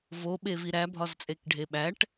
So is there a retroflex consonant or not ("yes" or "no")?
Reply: yes